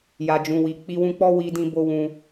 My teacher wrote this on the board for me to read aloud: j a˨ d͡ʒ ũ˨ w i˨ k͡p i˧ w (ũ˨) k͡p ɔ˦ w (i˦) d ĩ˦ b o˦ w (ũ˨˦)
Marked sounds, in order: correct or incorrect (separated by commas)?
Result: incorrect, correct, incorrect